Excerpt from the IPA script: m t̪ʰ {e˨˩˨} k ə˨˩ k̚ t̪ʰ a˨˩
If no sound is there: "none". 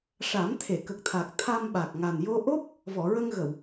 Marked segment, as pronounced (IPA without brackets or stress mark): e˨˩˨